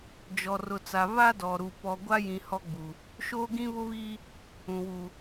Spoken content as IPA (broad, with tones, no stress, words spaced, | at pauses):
d͡ʒɔ˨rʊ˨ t͡sa˨βa˦dɔ˨ɾu˨ pɔ˨ɡʷa˦jĩ˨ hɔ˦ɡ͡bu˨ | ʃoː˦ɡĩ˦βʊ˦βiː˦ | ũ˨wu˨